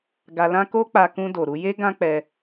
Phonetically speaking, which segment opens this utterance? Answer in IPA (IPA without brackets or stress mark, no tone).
ɡ